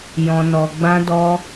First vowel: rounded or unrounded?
rounded